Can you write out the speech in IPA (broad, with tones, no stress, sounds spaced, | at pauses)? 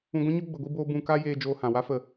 ũ˧ ɡʷ ɛ̃˦ ɲ o˦ ɡ͡b ə˧ ɡʷ i˦ b oː˦ b ũ˧ k a˦ j eː˧ d͡ʒ oː˧ h ã˨ w a˦ f ə˧